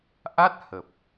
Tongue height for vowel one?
low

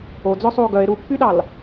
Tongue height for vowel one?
mid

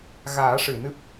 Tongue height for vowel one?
low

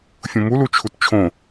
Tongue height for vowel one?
high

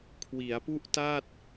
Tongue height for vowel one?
high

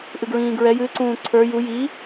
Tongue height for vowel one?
high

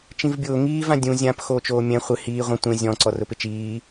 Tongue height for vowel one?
high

